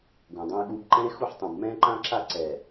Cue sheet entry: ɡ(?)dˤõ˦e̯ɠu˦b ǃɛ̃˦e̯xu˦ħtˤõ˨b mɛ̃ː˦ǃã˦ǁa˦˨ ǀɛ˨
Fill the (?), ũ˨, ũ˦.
ũ˨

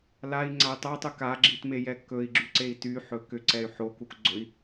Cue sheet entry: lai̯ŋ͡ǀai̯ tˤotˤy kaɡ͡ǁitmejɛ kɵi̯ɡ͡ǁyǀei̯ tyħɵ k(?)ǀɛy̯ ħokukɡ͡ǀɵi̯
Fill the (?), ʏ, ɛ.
ʏ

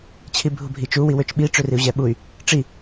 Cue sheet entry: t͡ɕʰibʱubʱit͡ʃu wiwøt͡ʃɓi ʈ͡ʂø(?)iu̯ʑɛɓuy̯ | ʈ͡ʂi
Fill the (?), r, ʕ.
r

